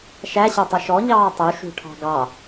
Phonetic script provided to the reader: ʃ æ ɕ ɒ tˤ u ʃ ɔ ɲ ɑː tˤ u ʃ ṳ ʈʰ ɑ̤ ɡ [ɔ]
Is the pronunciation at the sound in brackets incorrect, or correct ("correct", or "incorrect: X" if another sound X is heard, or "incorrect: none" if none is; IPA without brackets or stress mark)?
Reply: incorrect: ɑ